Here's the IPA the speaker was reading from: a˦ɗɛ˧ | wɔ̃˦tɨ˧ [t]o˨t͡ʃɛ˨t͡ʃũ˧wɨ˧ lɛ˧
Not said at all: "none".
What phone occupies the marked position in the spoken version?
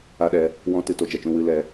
t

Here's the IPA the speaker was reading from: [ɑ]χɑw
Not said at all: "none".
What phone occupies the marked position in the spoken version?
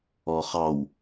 ɔ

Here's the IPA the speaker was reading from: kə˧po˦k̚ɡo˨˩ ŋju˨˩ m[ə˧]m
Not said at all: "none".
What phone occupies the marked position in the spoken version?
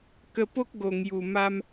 a˧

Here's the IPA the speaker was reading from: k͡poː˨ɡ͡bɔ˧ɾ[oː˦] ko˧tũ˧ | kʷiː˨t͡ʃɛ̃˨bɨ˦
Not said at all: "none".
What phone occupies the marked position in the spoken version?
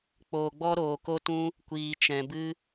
oː˨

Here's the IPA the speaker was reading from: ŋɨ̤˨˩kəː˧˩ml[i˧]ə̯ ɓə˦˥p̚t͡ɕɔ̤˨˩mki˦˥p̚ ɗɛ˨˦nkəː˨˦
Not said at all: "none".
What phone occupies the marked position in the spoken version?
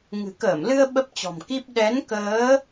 ɨ˧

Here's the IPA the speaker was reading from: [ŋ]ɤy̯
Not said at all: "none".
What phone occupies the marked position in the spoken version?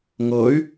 ŋ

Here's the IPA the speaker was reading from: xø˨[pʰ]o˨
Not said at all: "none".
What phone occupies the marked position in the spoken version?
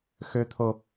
t̪ʰ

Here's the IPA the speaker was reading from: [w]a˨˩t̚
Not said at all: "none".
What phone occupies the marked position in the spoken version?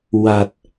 w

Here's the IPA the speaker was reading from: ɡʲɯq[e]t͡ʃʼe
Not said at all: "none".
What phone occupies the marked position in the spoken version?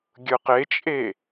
e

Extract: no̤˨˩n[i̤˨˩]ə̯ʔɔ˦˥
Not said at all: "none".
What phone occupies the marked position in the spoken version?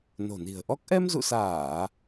i̤˨˩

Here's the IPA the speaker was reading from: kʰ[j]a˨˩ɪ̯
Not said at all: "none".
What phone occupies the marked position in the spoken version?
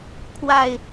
w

